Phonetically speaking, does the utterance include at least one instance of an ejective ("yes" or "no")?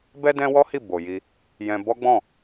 no